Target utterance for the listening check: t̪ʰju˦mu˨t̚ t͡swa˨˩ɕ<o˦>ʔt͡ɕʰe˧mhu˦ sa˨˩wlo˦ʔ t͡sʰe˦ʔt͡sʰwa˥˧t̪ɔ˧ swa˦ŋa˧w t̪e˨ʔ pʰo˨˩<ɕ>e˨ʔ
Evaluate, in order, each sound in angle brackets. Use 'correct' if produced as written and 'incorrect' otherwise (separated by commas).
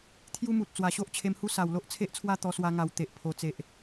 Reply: correct, incorrect